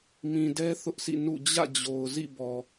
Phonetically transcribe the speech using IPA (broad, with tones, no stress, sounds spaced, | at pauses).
m ĩ˨ d ɛ˦ θ ʊ˦ ʔ sʰ ḭ˦˨ n ṵ˦˨ d͡ʑ ä̰˦˨ d͡ʑ o˨ ʊ̯ z ḭ˦˨ b ɔ˨